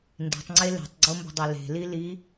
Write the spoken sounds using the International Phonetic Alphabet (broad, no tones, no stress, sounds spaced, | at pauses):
n d i̤ tˤ ŋ͡ǀ e l e̤ tˤ ɡ͡ǀ o m b ə̤ dˤ e l e̤ l i l i